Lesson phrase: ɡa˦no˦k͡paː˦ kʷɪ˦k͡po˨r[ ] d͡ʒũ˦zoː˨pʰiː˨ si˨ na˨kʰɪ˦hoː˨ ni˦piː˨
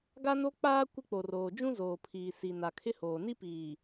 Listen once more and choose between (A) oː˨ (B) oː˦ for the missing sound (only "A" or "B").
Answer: A